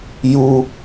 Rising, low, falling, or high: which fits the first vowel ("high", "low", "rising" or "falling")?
high